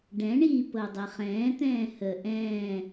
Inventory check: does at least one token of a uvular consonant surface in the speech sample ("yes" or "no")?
yes